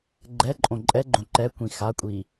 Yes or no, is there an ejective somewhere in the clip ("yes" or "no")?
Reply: yes